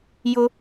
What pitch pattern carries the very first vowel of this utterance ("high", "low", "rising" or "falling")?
high